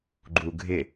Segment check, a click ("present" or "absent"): present